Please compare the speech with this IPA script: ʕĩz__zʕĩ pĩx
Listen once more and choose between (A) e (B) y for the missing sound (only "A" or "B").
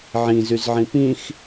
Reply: B